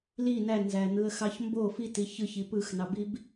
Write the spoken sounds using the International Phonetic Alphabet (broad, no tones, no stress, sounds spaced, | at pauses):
l i n æ n z æ n̪ ɯ ə̯ x ɑ ç m b o f i t i ç ɯ ç i p ɯ x n ɑ b i b